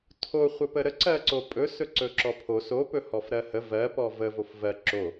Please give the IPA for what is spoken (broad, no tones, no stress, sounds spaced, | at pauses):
tʰ o χʷ ə p ə ɾ ə ǀ ɜ ǀ o pʼ ɵ s ɵ ǀ ɵ ǁ ɔ pʰ o s o p ɵ h ɔ f ɾ ɜ h ə v ɜ p ɔ v ə v o f v ɜ ǁ o